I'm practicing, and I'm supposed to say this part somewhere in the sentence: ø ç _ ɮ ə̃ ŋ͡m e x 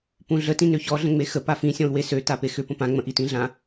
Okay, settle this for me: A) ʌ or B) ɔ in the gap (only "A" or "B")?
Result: B